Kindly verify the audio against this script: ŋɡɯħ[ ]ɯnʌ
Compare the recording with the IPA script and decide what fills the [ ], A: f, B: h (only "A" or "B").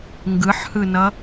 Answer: B